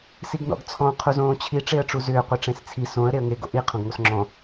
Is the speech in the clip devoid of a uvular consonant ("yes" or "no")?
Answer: no